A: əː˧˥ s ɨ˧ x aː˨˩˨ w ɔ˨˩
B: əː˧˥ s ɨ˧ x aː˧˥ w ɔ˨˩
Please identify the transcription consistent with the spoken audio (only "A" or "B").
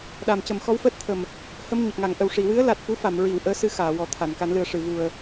A